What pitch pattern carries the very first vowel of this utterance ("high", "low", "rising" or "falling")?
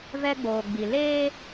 high